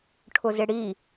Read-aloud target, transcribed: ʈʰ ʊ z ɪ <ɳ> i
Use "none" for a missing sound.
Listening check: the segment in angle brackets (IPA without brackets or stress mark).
ɽ